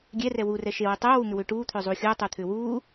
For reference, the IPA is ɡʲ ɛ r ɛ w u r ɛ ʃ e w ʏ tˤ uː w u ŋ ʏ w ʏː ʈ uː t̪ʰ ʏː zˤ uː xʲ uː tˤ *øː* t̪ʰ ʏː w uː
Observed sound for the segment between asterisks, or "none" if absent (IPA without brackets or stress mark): uː